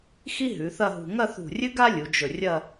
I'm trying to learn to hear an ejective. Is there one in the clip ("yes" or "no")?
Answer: no